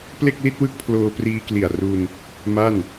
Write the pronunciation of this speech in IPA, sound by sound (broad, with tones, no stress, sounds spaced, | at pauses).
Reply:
p l e˥˩ k̚ l i˥˩ t̚ w ɯ˥˩ k̚ pʰ l oː˧ p r iː˧ k l i˨˩ a̯ r u˧ n | m a˥˩ n